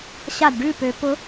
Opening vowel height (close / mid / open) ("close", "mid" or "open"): open